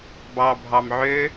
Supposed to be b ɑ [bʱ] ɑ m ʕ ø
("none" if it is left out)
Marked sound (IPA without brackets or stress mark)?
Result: bʱ